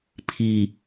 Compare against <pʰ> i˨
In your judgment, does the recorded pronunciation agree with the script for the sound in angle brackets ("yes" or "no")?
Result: yes